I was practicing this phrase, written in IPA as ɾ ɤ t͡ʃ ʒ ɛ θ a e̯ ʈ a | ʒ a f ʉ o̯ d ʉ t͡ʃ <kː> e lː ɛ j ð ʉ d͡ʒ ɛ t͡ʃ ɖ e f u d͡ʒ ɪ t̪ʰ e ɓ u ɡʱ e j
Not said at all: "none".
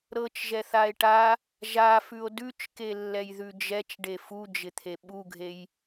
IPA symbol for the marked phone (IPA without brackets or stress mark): k